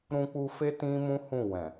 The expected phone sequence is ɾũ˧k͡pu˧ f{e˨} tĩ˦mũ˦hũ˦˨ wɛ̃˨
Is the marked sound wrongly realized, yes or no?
yes